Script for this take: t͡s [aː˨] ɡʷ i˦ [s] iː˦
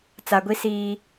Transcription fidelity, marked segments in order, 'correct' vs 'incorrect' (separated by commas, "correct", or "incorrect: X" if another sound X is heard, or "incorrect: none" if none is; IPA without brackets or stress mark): incorrect: a˨, correct